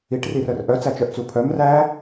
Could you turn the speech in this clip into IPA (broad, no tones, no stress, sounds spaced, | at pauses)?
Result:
i ʈ r i r œ r ʔ œ t͡s æ t͡ʃ œ ʔ t͡s u pʰ œ m r æ